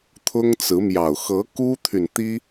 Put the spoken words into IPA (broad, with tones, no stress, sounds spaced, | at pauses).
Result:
t̪ʰ ʊ˥ ŋ t͡s ɹ̩˧˥ m j ɑ˨˩ ʊ̯ x ɤ˧˥ k u˥ t̪ʰ y˨ n t̪ i˥